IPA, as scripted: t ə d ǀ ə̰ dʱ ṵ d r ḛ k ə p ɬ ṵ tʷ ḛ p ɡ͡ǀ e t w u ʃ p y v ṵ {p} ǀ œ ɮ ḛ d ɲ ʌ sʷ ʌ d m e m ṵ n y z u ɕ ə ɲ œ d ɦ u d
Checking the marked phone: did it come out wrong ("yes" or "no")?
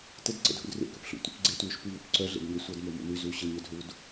no